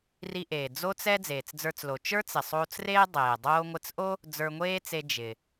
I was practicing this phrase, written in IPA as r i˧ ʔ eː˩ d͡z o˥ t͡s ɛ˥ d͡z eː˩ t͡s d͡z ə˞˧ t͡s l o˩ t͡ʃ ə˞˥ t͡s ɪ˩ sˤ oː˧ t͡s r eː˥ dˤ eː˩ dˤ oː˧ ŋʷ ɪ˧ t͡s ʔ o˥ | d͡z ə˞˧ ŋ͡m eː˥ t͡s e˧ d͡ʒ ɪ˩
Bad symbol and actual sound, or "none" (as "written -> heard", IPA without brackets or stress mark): ŋ͡m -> ŋʷ